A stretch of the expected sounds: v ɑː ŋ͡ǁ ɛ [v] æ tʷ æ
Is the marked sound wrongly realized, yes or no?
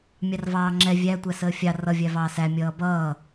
yes